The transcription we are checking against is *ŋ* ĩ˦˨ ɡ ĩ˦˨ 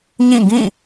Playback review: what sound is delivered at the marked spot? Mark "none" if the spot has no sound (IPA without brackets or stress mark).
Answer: ɲ